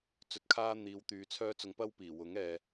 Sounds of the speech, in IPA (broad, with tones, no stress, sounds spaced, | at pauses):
t͡s ɵ˧ t̚ kʰ aː˥ n̪ iː˨˧ w t̪ yː˨˧ t͡sʰ œː˥ t͡s ʊ˧ ŋ p ɐ˥ w p iː˨˩ w ʊ˨˥ ŋ ɛː˨